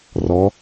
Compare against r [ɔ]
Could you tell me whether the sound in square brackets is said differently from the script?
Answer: no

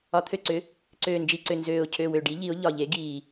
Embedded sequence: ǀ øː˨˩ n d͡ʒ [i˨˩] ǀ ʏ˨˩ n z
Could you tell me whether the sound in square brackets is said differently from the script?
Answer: no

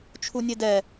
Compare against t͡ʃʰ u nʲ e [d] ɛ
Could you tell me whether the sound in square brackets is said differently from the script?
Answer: no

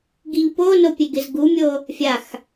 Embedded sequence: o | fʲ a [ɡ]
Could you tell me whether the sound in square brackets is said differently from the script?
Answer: yes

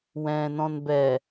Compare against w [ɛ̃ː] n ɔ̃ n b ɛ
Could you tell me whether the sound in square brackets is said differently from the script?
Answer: no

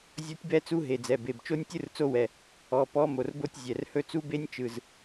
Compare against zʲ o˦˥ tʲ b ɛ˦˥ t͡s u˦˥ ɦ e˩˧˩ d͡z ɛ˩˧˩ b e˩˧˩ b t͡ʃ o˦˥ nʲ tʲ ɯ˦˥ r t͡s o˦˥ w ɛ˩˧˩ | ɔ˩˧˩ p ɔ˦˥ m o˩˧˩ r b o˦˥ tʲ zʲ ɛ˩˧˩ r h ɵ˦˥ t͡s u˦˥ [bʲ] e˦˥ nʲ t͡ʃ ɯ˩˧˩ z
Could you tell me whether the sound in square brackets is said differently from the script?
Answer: yes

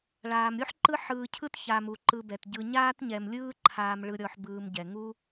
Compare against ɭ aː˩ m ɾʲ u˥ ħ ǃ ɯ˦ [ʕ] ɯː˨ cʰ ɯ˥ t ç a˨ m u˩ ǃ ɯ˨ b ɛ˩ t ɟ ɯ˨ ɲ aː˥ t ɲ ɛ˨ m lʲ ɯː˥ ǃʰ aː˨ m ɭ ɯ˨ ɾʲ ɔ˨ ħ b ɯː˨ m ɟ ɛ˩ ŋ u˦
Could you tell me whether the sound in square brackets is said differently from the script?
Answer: yes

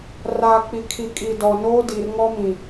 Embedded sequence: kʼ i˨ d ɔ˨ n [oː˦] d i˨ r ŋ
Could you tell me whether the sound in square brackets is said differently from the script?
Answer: no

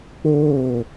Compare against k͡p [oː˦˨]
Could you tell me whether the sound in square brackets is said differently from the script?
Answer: no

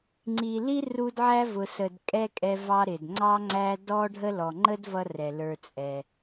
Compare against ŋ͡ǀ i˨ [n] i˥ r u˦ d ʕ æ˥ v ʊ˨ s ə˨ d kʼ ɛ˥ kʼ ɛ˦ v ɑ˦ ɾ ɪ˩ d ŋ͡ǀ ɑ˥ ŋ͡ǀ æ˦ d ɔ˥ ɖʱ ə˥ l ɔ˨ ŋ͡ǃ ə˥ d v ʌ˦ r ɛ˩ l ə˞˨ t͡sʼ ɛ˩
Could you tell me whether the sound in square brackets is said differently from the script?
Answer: yes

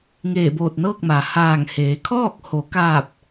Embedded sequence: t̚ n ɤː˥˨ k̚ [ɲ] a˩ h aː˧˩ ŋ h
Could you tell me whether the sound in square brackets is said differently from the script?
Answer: yes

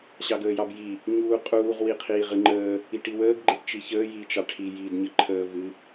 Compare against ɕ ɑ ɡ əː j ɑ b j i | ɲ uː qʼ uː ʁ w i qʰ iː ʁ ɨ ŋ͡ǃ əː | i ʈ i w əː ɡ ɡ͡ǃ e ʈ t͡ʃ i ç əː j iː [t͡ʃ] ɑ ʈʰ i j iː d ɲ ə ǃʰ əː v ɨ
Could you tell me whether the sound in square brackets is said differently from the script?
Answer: no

